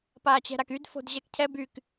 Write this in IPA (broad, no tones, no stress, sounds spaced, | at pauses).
p aː t͡ɕ ɛ̤ ɾ a k y d f o̤ d ʑ ɛ k cʰ ɛ b y k